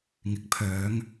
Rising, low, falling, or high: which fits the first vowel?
rising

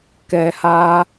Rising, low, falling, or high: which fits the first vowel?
low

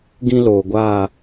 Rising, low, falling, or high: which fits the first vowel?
high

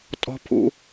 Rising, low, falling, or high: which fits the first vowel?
high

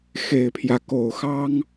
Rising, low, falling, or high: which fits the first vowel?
low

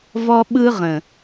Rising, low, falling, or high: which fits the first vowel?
high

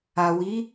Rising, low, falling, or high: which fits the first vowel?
low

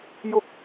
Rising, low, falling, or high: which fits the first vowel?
high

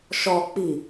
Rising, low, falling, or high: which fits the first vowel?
low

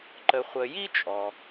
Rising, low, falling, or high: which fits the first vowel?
low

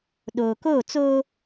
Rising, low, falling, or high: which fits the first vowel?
low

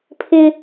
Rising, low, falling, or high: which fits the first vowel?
high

